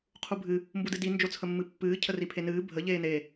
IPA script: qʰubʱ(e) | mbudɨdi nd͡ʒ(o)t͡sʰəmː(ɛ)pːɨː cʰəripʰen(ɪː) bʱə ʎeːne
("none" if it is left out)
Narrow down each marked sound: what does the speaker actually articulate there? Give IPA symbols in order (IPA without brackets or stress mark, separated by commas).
ɨ, o, ɨ, ɨː